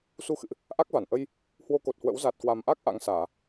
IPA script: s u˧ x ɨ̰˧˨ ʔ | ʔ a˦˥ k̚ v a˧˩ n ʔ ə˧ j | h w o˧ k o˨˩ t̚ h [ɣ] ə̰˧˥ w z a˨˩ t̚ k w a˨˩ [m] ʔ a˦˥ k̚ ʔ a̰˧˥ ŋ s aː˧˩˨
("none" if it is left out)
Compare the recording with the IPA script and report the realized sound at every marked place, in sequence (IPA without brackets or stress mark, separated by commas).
w, m